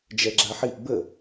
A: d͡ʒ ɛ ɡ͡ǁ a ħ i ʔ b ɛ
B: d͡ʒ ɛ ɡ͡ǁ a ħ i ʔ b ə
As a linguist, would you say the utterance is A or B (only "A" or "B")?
B